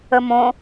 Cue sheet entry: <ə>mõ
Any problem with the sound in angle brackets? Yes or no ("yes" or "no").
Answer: no